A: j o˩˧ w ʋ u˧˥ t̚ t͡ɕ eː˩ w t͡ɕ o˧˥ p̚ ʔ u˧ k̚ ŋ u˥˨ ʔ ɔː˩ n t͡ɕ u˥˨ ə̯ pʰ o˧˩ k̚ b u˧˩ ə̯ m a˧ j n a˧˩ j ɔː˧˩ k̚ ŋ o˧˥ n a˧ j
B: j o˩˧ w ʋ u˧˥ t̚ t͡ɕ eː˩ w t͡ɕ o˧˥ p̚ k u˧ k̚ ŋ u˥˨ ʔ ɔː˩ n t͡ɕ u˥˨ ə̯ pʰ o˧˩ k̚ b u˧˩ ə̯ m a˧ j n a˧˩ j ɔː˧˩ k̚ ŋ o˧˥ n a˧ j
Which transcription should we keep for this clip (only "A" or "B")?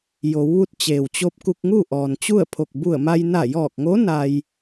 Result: B